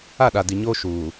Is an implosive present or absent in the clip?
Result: present